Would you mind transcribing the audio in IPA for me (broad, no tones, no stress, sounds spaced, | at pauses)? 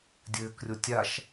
dʲ ɘː k rʲ o tʲ a ʃ